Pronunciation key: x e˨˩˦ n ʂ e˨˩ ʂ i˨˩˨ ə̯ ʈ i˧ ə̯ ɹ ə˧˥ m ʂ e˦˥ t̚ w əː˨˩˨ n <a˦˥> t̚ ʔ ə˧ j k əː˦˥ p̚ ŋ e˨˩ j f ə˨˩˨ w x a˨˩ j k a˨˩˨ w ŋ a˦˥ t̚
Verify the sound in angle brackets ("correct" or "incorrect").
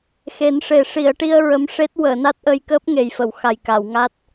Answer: correct